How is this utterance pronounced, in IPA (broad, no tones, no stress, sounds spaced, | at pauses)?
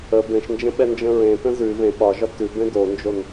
ə b ẽ ʃ n d͡ʒ ə̃ ɓ ɛ n d͡ʒ ə̃ ɹ ẽ t ə̃ z ʉ v ẽ ɓ ɒ ʒ ɒ t ʉ b ẽ d o n d͡ʒ o n